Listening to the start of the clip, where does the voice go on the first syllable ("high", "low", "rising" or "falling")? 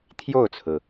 falling